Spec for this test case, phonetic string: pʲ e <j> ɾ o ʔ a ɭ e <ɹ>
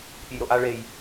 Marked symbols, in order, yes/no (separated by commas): yes, no